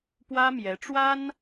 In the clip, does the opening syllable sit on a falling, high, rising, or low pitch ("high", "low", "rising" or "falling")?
high